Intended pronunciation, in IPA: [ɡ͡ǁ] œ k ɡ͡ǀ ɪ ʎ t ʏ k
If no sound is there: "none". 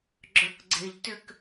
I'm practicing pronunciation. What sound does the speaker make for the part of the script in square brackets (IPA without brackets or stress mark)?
ɡ͡ǁ